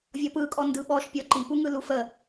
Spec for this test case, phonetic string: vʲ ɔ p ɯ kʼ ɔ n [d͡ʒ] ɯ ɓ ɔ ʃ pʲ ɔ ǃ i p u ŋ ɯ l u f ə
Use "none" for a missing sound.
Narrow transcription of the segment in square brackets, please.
d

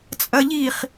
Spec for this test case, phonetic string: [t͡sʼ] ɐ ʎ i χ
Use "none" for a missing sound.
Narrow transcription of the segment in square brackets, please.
t͡sʼ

